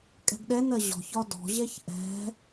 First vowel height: mid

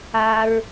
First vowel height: low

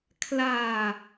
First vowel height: low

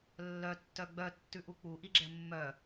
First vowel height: mid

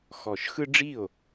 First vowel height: mid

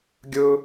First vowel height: high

